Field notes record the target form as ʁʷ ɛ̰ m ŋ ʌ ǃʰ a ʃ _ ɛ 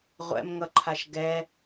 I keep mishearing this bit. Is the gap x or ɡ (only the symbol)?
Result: ɡ